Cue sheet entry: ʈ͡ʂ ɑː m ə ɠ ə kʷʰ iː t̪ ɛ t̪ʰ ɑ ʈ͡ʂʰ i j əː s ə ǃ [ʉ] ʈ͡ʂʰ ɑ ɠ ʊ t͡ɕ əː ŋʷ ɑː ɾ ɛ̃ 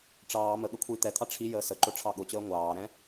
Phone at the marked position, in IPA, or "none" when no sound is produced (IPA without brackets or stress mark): ʊ